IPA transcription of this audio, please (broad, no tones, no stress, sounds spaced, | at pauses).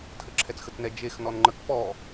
tʰ ə ǁʰ ɛ t͡s x ə t͡s n ɛ d͡ʒ e x n ɔ n ŋ͡ǃ ə k p ɔ